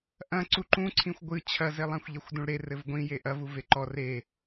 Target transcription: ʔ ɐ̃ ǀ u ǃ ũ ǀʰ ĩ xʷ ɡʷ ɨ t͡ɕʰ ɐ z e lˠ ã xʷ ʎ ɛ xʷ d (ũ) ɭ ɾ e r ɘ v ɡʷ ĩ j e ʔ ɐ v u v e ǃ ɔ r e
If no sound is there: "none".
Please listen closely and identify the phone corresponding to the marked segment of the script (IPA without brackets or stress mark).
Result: ũ